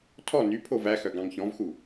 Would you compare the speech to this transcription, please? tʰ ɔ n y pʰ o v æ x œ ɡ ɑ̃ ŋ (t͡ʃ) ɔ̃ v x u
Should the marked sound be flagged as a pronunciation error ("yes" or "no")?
yes